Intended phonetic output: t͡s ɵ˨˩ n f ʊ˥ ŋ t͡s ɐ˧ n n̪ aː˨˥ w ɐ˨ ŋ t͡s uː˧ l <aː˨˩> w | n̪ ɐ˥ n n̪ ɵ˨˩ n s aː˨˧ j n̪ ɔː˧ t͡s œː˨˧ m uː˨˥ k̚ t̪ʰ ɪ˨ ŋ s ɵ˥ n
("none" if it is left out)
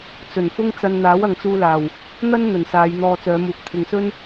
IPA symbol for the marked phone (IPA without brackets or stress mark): aː˨˩